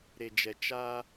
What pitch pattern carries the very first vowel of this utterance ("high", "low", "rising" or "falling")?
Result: low